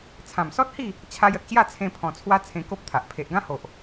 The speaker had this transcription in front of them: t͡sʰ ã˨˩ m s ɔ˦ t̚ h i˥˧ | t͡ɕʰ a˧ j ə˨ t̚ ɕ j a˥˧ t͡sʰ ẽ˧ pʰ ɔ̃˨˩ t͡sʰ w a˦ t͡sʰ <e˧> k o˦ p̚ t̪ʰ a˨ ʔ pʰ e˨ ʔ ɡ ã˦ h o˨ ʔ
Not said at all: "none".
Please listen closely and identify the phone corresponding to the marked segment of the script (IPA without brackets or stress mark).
ẽ˧